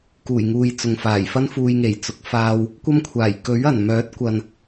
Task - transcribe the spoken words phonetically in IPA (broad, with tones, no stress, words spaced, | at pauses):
kuː˨˩jŋuː˨j t͡sʊ˨ŋ faː˨˩jfɐ˥nfuː˧j ŋe˨˩jt͡sʊ˨˥k̚faː˧w | kʷɐ˥mkʷʰaː˨˩j kɵ˨˥ɥɐ˨˩nmœː˨˥t̚kʷɐ˨n